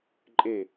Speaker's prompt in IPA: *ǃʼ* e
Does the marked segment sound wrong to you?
no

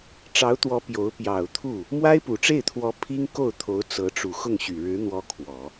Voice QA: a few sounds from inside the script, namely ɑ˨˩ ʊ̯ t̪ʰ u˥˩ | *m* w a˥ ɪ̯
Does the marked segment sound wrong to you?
no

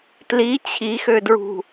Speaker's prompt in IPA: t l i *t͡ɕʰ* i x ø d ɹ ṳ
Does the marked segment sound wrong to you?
no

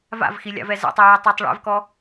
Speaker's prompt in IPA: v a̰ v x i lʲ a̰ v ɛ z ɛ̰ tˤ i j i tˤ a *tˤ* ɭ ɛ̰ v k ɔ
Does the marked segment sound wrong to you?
no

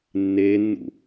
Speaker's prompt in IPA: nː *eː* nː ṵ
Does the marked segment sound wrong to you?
no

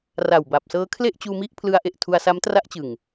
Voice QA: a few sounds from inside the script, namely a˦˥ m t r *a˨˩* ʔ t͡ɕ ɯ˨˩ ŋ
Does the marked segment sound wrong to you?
yes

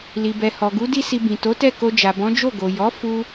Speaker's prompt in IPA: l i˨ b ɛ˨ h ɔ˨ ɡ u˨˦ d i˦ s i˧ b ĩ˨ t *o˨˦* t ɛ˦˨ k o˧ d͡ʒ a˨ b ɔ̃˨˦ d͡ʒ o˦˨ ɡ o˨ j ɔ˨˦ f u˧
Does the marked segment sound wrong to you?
no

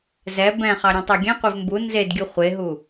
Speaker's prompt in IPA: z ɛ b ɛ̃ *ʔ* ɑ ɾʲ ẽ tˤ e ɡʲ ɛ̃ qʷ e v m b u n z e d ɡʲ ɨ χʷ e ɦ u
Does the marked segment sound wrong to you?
yes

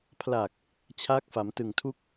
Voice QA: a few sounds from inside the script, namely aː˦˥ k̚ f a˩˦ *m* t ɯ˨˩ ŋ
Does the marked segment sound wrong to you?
no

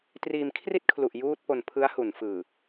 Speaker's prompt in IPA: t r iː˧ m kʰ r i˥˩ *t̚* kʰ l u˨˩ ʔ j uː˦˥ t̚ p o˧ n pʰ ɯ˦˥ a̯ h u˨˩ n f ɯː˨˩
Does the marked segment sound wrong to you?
no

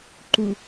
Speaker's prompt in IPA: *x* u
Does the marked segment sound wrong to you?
yes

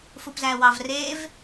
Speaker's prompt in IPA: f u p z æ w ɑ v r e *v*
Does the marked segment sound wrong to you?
no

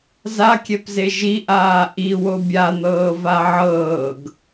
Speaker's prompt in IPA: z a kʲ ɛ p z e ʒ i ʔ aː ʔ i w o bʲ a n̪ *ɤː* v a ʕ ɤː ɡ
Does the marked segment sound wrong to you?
no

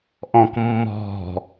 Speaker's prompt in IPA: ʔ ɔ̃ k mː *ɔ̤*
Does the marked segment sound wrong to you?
no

